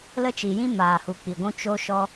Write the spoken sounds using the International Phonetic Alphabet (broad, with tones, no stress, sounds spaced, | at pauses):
l ə˧ t͡ʃ i˨ j ĩ˧ m aː˨ h u˨ k͡p i˨ ɡʷ ũ˧ t͡ʃ o˧ ʃ ɔ˧